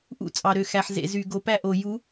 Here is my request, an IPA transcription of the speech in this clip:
ʔ ṵ˦ t͡sʼ ɑ˨ ɾ ø˨ x æ˨ ħ z ḛ˨ z y˨ ɡ o˨ p æ˦ ʔ o˨ j u˨˦

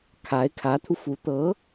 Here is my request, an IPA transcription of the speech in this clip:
kʰ a˧˥ ɪ̯ kʰ ä˧˥ t̪ʰ u˧ f u˧˥ t̪ ɤ˧˥

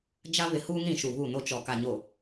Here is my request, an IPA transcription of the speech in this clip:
d͡ʒ a˦ β ɪ˨ h uː˦ ŋ ɾ ĩ˨ ʃ u˨ β u˦˨ n o˦ t͡ʃ ɔ˨ k a˨ ɲ o˨

